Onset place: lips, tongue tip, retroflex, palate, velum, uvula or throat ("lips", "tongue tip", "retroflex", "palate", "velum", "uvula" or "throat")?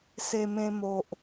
tongue tip